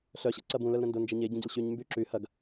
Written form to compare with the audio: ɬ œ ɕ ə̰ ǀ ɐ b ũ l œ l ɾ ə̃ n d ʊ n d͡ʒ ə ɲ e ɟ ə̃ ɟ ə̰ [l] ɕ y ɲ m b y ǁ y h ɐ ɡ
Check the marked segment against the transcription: correct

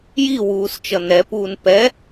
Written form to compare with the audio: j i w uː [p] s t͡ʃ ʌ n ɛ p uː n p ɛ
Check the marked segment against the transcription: incorrect: none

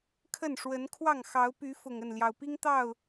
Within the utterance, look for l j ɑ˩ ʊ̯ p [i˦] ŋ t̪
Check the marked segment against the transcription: correct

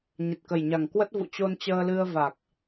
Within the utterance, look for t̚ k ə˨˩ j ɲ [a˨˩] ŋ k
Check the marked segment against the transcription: correct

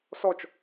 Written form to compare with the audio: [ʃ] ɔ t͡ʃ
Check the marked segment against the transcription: incorrect: s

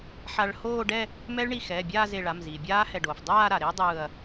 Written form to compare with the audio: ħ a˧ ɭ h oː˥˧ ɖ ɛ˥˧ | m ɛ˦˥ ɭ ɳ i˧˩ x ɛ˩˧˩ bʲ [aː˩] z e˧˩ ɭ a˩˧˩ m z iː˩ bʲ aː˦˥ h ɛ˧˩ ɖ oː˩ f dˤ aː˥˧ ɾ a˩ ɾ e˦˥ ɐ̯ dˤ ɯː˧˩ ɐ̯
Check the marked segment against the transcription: incorrect: aː˥˧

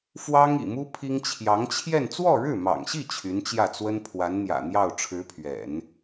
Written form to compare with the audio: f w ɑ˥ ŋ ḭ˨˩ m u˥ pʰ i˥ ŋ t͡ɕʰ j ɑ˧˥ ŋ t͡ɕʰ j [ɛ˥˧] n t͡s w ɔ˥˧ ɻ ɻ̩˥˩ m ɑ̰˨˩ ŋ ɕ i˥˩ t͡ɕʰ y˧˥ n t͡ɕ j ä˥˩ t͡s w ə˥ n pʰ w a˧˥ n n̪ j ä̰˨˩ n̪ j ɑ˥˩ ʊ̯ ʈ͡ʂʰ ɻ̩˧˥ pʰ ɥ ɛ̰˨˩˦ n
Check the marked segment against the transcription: correct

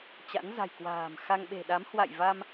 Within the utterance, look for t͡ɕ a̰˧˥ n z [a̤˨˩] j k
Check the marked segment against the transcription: correct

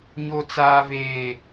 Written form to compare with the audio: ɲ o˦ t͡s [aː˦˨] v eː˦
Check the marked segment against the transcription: incorrect: aː˦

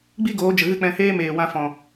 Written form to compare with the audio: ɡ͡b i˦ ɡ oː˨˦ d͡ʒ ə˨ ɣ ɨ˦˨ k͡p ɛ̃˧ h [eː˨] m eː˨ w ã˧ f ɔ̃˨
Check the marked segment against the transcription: incorrect: eː˦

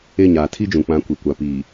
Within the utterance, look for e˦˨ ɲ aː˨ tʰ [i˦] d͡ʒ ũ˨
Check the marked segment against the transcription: correct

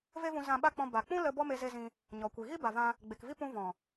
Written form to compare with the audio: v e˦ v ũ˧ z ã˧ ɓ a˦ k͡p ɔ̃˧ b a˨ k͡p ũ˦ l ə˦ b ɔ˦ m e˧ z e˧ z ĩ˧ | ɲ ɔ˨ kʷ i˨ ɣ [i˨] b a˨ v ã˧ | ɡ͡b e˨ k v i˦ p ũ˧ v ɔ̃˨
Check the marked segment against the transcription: incorrect: i˦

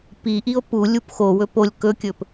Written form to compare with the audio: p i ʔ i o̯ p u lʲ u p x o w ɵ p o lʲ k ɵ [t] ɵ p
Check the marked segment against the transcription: incorrect: kʲ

